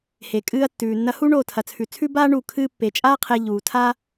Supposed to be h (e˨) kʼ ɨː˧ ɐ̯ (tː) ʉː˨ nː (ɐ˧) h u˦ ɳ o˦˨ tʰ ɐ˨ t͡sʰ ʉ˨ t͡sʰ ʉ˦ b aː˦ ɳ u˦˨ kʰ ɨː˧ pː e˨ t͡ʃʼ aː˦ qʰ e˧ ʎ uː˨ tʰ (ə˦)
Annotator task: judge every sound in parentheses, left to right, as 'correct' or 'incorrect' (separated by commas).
correct, correct, correct, incorrect